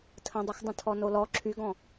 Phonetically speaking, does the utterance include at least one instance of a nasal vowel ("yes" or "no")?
yes